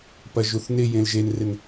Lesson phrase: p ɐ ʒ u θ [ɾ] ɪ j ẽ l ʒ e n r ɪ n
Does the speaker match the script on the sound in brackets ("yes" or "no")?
no